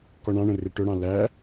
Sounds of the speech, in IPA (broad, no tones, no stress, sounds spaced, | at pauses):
k ɔ ɳ ɑ̃ ɳ ə̃ r ɪ ʈ ʊ ɽ ɑ̃ l æ